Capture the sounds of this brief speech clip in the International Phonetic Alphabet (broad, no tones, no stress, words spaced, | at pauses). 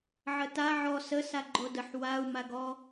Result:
ʕəta ʕɔ sə saɡ͡ǃodəħ wau̯ maɡɔ